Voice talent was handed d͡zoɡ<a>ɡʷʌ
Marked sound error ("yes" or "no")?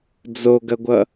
yes